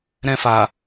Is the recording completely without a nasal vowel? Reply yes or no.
no